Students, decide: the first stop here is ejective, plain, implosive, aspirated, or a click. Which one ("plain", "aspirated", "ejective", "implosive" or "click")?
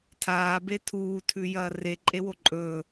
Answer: aspirated